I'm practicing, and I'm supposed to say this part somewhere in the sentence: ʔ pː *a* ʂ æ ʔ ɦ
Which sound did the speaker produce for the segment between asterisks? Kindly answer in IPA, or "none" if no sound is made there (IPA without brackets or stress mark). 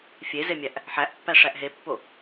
æ